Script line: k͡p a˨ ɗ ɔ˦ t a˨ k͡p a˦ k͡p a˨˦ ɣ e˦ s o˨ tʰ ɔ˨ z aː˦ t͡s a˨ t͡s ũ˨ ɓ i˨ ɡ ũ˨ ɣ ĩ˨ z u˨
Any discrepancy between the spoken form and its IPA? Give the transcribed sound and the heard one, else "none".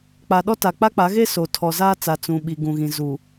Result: none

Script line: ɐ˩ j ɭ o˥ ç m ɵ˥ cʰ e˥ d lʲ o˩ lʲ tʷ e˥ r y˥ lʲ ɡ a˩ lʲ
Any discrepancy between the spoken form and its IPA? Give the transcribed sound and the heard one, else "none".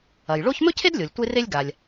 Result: y˥ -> e˥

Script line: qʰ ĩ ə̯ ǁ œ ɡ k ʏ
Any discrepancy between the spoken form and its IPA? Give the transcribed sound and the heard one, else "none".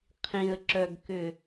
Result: none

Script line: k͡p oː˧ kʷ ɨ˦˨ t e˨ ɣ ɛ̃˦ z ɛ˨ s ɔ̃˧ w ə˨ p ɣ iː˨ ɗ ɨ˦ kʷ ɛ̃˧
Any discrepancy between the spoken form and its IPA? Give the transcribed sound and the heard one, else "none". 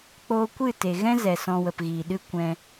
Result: none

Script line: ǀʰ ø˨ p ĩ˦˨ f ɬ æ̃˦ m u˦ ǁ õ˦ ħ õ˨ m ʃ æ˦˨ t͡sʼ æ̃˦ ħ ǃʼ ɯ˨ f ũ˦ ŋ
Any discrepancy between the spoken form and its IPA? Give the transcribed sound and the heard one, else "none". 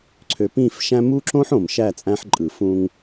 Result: ɬ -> ʃ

